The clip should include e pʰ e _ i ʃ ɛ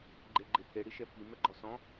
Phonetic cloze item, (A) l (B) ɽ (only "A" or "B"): B